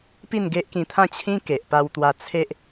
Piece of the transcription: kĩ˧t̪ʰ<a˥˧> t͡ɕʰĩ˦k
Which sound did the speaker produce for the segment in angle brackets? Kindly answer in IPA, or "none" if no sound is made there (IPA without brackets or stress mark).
ã˥˧